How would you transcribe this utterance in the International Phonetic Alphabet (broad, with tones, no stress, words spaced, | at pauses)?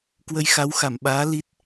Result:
kwə˧jxa˨˦wxa˧˩mɓaː˨˦ li˦˥t̚